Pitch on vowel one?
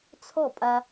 falling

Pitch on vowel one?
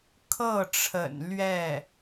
falling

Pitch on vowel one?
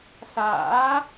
rising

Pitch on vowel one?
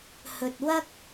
low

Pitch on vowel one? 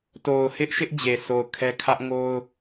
low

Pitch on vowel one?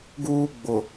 high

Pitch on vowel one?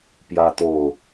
high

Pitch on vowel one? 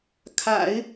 low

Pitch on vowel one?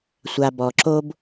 low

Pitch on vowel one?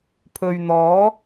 low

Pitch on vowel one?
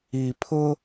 low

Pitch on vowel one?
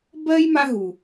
high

